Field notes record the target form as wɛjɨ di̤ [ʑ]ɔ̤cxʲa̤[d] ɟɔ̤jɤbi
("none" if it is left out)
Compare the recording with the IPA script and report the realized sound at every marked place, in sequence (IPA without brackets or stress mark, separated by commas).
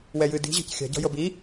ʑ, none